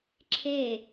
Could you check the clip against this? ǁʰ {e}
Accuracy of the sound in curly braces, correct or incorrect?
correct